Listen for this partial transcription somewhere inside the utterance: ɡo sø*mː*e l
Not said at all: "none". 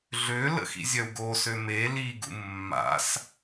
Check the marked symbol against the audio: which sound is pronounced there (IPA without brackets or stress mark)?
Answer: m